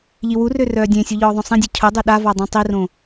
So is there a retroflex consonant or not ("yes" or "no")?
no